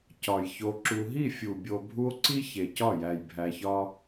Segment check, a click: present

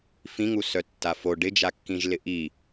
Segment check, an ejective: absent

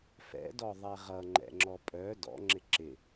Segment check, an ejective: present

